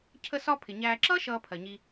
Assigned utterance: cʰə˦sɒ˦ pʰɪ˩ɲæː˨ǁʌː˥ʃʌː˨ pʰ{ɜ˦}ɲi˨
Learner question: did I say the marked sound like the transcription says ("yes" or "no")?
no